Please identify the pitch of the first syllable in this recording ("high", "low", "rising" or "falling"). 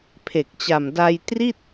low